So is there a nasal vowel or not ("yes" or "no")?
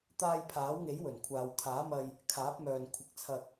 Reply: no